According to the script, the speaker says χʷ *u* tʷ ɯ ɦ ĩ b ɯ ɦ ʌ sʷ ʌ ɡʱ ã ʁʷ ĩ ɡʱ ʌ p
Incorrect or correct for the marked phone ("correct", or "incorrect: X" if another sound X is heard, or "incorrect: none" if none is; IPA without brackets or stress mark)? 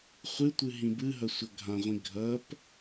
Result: incorrect: ɯ